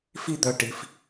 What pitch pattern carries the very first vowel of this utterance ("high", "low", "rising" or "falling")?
high